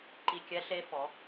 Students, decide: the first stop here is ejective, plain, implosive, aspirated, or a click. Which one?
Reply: click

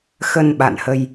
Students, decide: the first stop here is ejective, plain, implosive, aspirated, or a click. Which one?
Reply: implosive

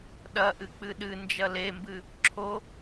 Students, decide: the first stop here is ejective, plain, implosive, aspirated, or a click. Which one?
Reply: implosive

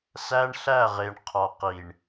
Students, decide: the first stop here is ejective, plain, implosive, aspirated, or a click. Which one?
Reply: aspirated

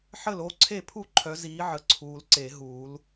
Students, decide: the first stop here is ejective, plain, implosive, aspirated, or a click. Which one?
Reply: click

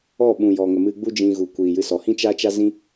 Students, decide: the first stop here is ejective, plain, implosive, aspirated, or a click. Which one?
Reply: implosive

